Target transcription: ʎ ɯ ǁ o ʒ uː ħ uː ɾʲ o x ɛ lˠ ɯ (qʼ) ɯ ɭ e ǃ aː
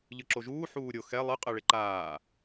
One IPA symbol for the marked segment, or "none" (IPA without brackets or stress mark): qʼ